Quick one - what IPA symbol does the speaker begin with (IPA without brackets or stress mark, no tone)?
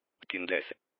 tʲ